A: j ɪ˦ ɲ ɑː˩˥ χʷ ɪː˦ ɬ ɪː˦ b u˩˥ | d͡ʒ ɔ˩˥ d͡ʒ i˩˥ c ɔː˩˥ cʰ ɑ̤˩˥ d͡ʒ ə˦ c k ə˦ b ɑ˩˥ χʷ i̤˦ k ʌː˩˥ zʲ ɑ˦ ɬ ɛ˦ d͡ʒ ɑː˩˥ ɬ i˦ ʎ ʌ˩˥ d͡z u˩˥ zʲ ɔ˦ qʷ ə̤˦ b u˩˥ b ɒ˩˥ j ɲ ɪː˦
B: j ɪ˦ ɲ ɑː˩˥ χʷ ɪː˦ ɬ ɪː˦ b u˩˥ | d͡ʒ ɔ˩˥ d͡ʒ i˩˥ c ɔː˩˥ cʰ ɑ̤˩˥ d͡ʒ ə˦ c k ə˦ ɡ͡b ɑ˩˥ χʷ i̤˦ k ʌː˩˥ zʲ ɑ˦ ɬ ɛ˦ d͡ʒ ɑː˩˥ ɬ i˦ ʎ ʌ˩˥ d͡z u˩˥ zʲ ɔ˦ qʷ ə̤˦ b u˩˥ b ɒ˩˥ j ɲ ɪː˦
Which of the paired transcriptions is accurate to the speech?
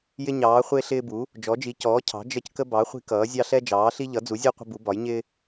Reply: A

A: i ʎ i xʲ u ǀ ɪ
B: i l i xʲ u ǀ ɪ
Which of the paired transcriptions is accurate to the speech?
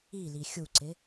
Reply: B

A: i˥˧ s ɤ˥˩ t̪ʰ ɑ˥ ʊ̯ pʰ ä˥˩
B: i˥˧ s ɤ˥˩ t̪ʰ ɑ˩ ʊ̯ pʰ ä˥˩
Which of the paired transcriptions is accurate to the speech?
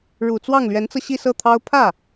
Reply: A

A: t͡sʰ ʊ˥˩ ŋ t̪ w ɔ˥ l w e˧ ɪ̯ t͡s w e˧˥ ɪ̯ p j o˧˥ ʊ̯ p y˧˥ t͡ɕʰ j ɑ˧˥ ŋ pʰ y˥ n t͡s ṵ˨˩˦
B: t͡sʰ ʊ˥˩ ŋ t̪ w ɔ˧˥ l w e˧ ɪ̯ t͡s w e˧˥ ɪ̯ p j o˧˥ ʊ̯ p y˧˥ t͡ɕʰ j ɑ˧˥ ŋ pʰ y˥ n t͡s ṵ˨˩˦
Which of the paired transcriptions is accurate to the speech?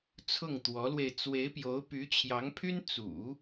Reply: B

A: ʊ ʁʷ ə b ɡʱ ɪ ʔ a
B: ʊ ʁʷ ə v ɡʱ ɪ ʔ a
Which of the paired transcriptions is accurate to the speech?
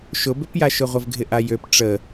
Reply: B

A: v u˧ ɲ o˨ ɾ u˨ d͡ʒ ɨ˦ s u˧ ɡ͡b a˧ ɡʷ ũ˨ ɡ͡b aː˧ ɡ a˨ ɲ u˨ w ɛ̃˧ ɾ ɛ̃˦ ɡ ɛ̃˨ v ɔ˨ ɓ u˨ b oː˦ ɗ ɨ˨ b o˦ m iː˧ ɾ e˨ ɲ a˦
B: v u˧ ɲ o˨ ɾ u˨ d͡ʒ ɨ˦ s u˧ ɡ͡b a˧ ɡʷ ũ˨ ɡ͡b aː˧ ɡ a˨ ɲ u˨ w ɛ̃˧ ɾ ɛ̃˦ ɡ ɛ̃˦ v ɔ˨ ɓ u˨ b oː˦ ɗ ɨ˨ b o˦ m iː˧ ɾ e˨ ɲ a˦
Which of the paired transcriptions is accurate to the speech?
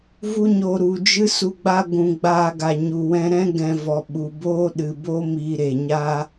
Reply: A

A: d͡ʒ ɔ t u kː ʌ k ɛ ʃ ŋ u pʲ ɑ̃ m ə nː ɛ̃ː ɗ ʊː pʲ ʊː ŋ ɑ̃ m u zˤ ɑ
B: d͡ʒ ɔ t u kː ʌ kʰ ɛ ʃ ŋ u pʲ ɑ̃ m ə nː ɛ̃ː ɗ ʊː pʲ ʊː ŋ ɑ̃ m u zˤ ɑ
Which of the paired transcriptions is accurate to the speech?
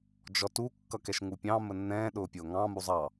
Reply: A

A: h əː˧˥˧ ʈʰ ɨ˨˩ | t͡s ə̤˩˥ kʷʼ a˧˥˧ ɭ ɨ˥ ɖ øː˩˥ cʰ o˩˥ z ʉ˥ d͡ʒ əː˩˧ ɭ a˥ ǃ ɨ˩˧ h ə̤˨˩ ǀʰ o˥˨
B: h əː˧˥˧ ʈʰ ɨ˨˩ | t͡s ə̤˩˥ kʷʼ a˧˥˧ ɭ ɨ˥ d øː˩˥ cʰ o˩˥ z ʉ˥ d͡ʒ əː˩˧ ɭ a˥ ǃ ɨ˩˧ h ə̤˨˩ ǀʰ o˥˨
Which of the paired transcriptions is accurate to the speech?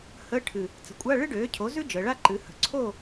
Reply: A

